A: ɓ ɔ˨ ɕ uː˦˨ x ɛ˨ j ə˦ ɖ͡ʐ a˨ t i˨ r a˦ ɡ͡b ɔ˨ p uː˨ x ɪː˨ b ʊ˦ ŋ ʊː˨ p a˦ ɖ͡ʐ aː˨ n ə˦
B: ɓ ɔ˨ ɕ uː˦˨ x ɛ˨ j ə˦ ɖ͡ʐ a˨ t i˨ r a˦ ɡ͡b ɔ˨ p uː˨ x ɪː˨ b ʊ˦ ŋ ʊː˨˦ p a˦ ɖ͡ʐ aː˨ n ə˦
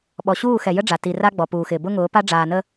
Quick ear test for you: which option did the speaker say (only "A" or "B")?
B